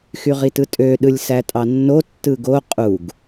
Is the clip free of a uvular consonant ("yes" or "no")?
no